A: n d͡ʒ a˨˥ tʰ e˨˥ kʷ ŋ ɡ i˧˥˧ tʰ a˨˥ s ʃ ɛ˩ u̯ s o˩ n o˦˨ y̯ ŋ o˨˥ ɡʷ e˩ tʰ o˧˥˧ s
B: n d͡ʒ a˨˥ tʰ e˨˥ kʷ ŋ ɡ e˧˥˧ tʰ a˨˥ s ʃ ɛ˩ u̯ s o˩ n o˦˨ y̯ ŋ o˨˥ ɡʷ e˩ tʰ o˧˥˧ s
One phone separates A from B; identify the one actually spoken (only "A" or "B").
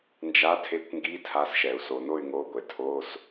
A